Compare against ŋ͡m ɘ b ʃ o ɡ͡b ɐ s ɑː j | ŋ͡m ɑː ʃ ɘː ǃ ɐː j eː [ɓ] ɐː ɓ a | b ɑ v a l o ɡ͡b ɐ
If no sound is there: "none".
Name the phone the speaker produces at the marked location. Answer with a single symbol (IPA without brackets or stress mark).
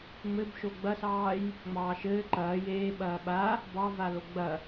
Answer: ɓ